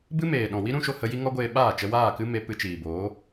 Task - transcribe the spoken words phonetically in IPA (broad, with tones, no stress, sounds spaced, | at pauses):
b ɨ˦ m eː˨ ɗ ɔ̃˨ w i˦ ɾ ũ˧ ʃ o˧ h ə˧ j i˦ ŋ ɔ˦ ɡʷ eː˧ ɓ aː˦˨ t͡ʃ ə˧ w aː˦˨ k ɨ˦ m e˧ p ɨ˧ t͡ʃ iː˨ b oː˨˦